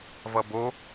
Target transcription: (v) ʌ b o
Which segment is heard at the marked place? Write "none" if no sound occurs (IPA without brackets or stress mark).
v